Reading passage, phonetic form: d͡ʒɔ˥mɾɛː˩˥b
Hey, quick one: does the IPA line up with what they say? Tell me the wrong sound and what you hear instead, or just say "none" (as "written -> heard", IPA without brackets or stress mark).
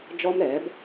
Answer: none